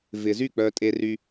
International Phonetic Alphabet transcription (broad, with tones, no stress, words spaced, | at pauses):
vɪ˨zy˥˩ k͡pœ˨tʼe˨ry˨